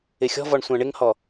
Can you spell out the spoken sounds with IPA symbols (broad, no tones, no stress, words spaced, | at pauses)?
ɪxʲɔ̤vɔɳ sʷãɳɪŋhɔ